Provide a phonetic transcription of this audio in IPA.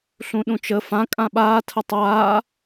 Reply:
ɬ ũ ɗ ũ t͡ʃ ə f ã kʼ ã ɓ aː tʰ ə tˤ aː

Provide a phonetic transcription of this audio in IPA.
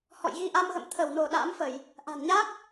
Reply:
h ɔ̰˧˨ j ɣ i˧ ʔ a˧ m ɣ ə̰˧˨ m t̪ʰ ə˧˩ w n o˧˩ ɗ a̰ː˧˥ m f ə˧˩˨ j | ʔ a̤˨˩ n ɲ a˦˥ k̚

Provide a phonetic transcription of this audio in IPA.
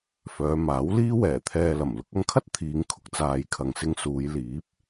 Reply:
f œː˨˧ m aː˨˥ w l iː˥ w ɛː˨˩ t̪ʰ ɛː˧ l ɐ˨˩ m l ʊ˧ k̚ ɐ˧ ŋ kʰ ɐ˥ t̚ t̪ʰ iː˨˧ ŋ kʰ ʊ˧ k̚ t͡s aː˨ j kʰ ɐ˨ ŋ s ɪ˧ ŋ s uː˨˧ j l iː˨˥ p̚

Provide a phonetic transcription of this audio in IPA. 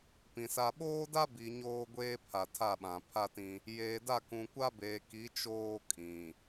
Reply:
p ĩ˨ s a˦ ɓ oː˦ d a˦ b i˨ ɲ oː˦ ɡʷ eː˦ pʰ a˨ tʰ a˦˨ ɓ ã˨ pʰ a˦ t ĩ˦ | j eː˨ d a˦˨ k ũ˨ kʷ a˦ b eː˨ k i˨˦ t͡ʃ oː˦ kʼ ĩ˨

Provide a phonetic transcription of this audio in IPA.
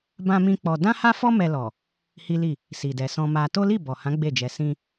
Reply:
b ã˦ m ĩ˦ k͡p ɔ˧ d ã˦ h a˦ f ɔ˦ m ɛ˧ l ɔ˨ | h i˦ l i˦˨ | s i˧ d ɛ˧ s ɔ̃˦ m a˦ t o˦ l i˦˨ b ɔ˨ h ã˨˦ ɡ͡b e˦˨ d͡ʒ ɛ˧ s ĩ˦

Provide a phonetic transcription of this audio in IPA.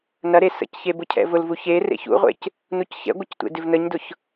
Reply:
n ɐ ɾ e s ə̰ c ç e b ʊ cʰ ɛ̰ v ʊ l v u ç e r ḛ ç ṵ ʁʷ ḛ c | n u c ç ɛ̰ ɡʷ ə c tʷ ḛ d ɪ v n ə ɲ d ʊ ç

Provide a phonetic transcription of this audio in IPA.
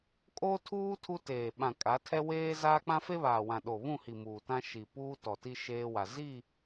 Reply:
kʼ o˦ tʰ uː˦ tʰ u˦ t eː˨ ɓ ã˨ kʼ a˨˦ tʰ ɛ˦ w eː˦ z aː˦ k͡p ã˦ f e˦ β aː˨ w ã˨ ɗ o˨ β ũ˦˨ h i˨ m uː˨ t ã˦ ʃ i˨ p uː˦ t ɔ˨ t i˦ ʃ eː˦ w a˨ z i˦˨

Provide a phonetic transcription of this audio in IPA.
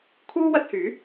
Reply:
kʰ uː˥ w ɐ˧ t̚ h yː˨˥

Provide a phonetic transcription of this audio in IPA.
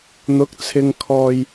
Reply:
n̪ ʊ˨˥ k̚ t͡sʰ ɪ˨ ŋ kʰ ɔː˨ j

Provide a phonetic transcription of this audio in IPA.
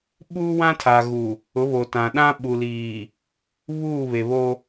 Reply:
ɓ uː˦ w ã˦ tʰ a˨ ɣ u˨ | ʊ˨˦ β o˨ t ã˨ ɗ ã˦ ɓ u˨ l iː˨ | β uː˦˨ β e˨ β o˦

